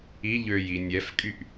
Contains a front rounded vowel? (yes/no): yes